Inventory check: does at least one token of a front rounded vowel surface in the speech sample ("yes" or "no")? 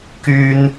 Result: yes